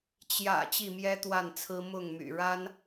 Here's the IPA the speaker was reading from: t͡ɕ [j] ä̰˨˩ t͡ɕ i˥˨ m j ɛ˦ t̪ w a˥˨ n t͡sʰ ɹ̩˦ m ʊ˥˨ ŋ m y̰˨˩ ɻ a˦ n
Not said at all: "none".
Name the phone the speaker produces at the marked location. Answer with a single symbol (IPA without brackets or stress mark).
j